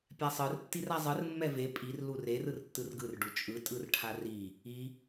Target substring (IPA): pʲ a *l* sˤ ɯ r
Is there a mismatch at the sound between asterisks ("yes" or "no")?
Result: yes